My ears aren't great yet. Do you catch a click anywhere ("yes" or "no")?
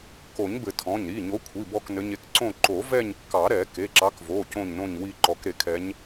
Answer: yes